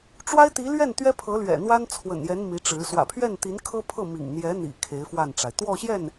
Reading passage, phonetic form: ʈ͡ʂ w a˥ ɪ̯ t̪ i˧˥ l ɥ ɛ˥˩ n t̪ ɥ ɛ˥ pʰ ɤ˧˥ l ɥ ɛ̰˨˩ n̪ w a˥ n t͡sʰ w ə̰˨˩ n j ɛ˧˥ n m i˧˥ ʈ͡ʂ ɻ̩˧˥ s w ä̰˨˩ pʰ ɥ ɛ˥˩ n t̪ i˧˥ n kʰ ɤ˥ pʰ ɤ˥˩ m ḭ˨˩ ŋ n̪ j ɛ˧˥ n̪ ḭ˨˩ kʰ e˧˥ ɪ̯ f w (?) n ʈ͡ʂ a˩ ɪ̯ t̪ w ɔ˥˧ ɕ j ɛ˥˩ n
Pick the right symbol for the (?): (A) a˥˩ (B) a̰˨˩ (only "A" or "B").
A